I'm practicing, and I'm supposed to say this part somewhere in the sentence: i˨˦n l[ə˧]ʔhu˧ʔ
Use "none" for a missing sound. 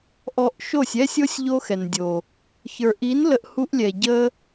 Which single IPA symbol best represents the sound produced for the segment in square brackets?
ə˧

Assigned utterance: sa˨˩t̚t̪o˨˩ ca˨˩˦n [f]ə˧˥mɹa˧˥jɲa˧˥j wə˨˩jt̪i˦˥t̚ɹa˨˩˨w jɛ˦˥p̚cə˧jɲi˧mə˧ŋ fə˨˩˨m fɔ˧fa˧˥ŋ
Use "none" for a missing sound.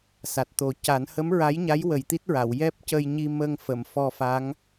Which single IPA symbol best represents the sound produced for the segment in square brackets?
h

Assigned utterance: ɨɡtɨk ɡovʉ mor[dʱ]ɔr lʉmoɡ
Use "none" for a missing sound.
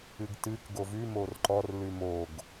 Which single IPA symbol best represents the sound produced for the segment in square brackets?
ǃ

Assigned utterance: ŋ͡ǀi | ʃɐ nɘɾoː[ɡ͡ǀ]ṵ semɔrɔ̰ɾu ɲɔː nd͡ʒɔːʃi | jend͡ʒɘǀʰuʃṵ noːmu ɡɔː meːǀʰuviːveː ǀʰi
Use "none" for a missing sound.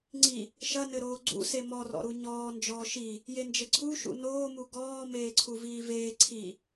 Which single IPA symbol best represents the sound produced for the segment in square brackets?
ɡ͡ǀ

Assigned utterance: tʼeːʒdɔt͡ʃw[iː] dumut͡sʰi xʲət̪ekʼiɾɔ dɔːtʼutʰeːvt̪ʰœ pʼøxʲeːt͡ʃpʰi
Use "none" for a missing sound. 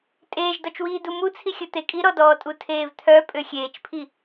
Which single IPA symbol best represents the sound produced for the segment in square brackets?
iː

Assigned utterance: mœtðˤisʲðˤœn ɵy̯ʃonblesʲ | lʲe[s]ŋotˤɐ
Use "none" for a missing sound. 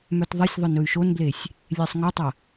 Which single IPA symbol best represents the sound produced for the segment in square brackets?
sˤ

